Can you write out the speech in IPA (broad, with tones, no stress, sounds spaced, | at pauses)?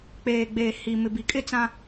k͡p eː˨ ɡ͡b eː˨ h i˨ m ɪ˨ b i˨ kʼ ɪ˦ t͡s ã˦